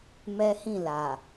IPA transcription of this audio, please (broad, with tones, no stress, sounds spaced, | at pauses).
m ɛ˦ h ĩ˦˨ l a˨